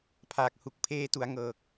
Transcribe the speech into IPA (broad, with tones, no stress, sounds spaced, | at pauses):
pʰ aː˨˩ k̚ h u˨˩ k̚ pʰ eː˧ t u˩˦ a̯ ŋ ɤː˨˩ k̚